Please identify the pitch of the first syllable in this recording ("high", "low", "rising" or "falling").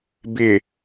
low